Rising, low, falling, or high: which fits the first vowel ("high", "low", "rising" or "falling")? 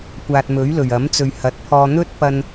low